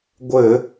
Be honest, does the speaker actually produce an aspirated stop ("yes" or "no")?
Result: no